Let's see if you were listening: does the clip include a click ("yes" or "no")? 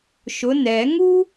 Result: no